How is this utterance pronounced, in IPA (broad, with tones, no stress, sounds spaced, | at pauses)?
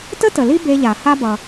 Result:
t ə˥ t ə˩ l i˥ b e˧ ʎ a˩ h a˥ b ʌ˩